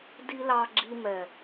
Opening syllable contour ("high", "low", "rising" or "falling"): high